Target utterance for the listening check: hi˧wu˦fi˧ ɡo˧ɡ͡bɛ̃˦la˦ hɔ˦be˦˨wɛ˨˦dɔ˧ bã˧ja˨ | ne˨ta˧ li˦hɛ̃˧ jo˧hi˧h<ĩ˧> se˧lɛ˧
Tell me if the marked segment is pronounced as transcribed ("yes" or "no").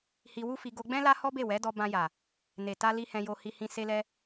yes